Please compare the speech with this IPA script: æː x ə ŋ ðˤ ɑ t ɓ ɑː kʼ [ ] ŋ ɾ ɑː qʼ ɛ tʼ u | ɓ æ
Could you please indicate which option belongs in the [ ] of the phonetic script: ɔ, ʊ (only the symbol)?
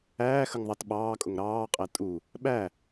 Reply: ʊ